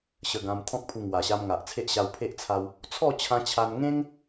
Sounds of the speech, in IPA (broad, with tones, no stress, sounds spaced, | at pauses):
ɕ ə˧ ɡ ã˧ m t̪ʰ ɔ̃˦ k̚ pʰ u˧ ŋ w a˨˩ ɕ a˧ m ŋ a˨ ʔ t͡sʰ e˦ ʔ ɕ a˧ w pʰ e˦ ʔ t͡sʰ a˧ w | t͡sʰ ɔ˥˧ t͡ɕʰ ã˧ t͡ɕʰ a˧ n ŋ ẽ˦ ŋ